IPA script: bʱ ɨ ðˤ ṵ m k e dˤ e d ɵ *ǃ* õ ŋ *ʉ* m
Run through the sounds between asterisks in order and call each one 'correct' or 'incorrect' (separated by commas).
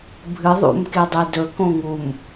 incorrect, incorrect